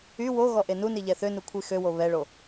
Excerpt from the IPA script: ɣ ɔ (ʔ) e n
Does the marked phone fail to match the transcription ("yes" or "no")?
no